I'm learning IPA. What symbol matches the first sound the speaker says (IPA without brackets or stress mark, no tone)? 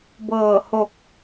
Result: b